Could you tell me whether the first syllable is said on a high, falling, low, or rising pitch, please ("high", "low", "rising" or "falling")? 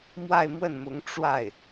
falling